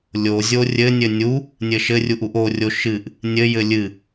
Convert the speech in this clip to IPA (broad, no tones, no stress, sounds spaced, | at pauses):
lʲ o zʲ o rʲ ɘ nʲ ɘ nʲ u | nʲ ɘ ʃ ɘ rʲ u ʔ u ʔ o rʲ o ʃ ɨ ʔ | nʲ ɘ j ɘ lʲ ɨ